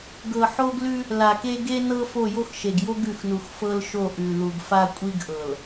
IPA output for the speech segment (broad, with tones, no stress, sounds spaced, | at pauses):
ɡ ɤ˨ ħ o˦ ɡ l ʉ˦ | l a˨ k e˦ ɡ e˦ n ɤ˦ f o˦˨ j o˦ x ʃ e˨ ɡ j o˦ ɡ ʉ˨ x n u˨ x f ɤ˦ l ʃ o˦˨ ʔ ʉ˨ l u˨ ɡ f a˦ kʷʼ i˦ ɡ ʔ ɤ˨ l